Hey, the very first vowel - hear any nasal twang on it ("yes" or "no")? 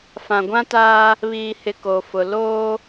yes